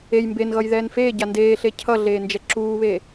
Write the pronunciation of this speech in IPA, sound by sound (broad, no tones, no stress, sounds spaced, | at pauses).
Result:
e j m b e n ɣ ʌ j ð ɛː n f eː ɟ a n d eː ɬ e cʰ ʌ ɮ eː n d͡ʒ ɛ ǁ uː β e